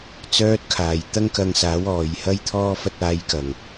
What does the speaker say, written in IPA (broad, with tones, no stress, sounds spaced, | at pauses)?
t͡s œː˥ t̚ kʰ aː˨˩ j t̪ ɐ˥ ŋ k ɐ˧ ŋ s aː˨˥ w ɔː˨ j h ɐ˥ j t̪ʰ ɔː˥ f ɐ˧ t̚ aː˨˧ j k ɐ˨˩ ŋ